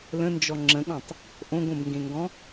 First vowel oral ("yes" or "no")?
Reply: no